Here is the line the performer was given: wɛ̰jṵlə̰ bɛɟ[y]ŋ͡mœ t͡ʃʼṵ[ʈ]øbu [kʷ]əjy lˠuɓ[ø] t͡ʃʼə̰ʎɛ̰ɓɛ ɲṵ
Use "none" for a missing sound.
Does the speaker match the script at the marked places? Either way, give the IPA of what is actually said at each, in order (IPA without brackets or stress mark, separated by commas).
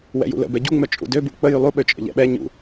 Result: u, d, k͡p, ø